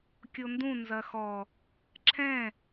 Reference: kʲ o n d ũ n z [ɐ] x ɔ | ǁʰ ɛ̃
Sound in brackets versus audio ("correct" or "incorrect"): correct